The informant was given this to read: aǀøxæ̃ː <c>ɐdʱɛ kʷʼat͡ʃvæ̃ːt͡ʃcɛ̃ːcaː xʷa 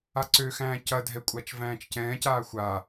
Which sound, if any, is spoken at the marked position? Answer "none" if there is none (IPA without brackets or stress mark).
c